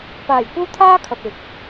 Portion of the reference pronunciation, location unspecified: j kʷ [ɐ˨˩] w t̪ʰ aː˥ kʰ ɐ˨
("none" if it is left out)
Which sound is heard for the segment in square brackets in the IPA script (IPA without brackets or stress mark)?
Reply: ɐ˥